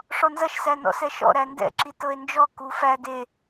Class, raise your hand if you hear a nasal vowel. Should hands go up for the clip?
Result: no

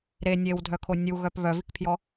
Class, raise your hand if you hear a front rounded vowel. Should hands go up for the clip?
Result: yes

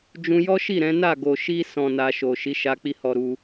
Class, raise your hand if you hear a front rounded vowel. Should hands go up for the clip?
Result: no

